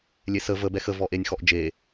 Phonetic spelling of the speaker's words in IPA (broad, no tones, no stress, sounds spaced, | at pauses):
lʲ e s ə v ə b ɛ x ə v ɔ ʔ e nʲ x ɔ ʔ d͡ʒ e